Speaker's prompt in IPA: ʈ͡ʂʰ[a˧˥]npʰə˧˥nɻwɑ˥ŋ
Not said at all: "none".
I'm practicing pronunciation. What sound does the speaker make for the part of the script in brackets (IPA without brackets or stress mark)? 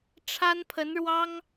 a˥